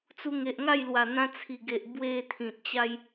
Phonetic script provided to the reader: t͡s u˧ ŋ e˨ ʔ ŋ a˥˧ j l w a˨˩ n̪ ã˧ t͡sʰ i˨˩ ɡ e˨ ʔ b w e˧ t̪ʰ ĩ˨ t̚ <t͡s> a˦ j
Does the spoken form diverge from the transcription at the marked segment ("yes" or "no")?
yes